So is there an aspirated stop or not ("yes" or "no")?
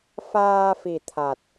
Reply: yes